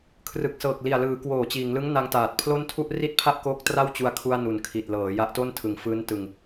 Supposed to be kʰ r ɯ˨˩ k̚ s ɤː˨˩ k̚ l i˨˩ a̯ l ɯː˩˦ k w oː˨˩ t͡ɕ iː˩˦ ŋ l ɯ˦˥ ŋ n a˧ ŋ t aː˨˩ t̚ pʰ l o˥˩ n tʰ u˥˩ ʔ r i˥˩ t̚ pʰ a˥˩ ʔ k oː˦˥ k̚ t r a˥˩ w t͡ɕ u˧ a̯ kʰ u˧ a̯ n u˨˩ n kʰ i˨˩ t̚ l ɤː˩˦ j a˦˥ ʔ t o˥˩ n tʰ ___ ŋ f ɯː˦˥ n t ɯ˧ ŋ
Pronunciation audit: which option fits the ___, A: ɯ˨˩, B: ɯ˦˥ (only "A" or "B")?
A